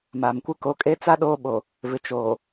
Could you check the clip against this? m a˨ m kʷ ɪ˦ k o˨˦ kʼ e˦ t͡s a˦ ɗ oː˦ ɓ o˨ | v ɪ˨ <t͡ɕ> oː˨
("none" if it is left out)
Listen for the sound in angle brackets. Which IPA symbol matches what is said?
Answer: t͡ʃ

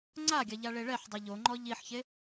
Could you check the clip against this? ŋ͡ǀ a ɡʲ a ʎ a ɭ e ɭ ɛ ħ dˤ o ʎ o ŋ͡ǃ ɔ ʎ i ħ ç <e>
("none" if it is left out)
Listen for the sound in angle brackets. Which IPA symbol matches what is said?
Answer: e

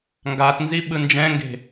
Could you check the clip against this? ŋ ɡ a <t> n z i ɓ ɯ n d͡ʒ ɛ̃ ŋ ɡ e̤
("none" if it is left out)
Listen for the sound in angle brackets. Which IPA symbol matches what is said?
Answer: t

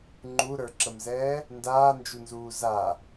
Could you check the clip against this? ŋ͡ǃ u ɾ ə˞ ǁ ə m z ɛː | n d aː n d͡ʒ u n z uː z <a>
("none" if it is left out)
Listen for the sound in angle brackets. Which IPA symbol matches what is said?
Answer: a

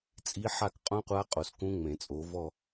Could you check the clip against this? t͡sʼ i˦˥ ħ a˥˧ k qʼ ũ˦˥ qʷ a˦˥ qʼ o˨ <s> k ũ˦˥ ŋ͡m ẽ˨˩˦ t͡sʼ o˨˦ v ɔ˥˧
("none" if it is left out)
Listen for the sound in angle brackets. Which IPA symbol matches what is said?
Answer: s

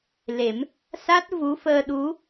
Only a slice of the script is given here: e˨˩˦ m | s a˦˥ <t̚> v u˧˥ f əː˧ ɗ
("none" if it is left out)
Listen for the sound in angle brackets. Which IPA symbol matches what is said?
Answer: t̚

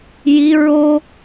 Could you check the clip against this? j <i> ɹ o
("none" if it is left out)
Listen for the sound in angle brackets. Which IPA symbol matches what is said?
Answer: i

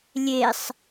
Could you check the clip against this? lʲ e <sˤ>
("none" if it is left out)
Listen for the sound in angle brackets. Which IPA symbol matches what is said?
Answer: sˤ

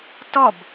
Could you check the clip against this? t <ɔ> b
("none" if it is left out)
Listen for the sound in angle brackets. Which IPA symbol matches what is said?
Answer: ɔ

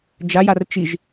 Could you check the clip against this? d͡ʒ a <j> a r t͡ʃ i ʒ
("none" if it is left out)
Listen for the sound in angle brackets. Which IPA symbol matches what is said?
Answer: j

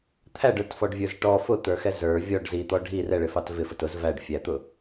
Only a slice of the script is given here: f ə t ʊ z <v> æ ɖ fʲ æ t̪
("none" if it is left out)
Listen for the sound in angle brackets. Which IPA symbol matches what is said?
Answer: v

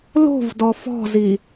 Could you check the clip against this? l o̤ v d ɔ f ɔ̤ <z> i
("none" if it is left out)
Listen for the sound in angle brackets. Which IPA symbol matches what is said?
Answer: z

